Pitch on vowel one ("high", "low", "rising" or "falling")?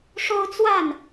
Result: high